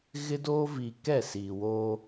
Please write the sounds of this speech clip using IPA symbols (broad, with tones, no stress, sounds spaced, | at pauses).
ɣ ɪ˦ d oː˦ v iː˨ k ɛ˦˨ s iː˨ w oː˦